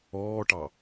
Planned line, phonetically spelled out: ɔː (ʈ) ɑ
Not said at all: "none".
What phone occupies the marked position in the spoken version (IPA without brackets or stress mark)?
ʈ